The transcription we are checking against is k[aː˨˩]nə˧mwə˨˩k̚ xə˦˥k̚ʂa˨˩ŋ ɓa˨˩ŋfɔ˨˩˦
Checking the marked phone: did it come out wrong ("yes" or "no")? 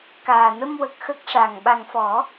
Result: no